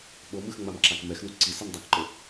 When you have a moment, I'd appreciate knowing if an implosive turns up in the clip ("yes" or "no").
yes